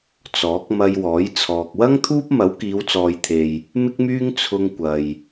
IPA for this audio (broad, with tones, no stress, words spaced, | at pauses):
t͡sɔː˨˥k̚ mɐ˧jwɔː˨˥j t͡sʰɔː˧k̚ wɐ˥ŋt̪ʰuː˥p̚ mɐ˨˥wkiː˨˧wt͡sɔː˨jt̪ʰe˨j | mɪ˥k̚myː˥ŋ t͡sʰʊ˧ŋkʷɐ˨j